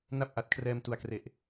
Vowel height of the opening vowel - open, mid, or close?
open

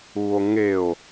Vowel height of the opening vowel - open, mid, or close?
close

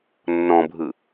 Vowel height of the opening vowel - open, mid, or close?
mid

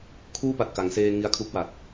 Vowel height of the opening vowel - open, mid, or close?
close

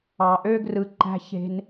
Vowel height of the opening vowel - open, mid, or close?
open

